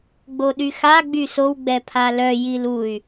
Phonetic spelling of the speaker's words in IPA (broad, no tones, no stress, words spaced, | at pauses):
ɡ͡boɗyxa ɡ͡bysow ɡ͡bɛpʰalœ jiluy̯